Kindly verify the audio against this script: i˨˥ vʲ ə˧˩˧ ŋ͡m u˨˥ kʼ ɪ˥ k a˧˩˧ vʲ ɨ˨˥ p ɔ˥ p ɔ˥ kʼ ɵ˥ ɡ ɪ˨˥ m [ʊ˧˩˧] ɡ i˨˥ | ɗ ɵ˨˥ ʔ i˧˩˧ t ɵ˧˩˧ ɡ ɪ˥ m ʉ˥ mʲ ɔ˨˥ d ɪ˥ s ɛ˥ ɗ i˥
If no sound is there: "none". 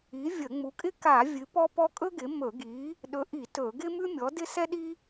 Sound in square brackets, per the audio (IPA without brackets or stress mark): ɵ˧˩˧